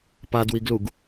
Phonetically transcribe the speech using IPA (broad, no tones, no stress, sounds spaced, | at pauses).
p a d w i ɡ l u ɡ